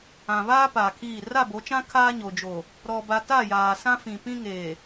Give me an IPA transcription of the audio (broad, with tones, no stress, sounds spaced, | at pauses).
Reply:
ã˨ β aː˦ p aː˨ kʰ iː˦˨ r a˦˨ b o˨˦ t͡ʃ ã˦ kʰ aː˦ ɲ o˨ d͡ʒ o˨ | ɾ ɔ˨ b a˨ t a˦˨ j aː˨ s ã˦ f ĩ˨ p ĩ˦ ŋ eː˨